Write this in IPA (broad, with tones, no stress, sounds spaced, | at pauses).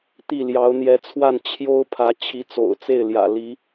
t̪ i˥˩ l j ɑ˧˥ ʊ̯ n̪ j ɛ˧˥ t͡sʰ w a˥˩ n t͡ɕʰ j o˥ ʊ̯ pʰ ä˧˥ t͡ɕʰ i˧˥ t͡s o̰˨˩ ʊ̯ t͡s e˥˩ ɪ̯ l j ä̰˨˩ l i˧˥